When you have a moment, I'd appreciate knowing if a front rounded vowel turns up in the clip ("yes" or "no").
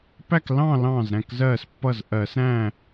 no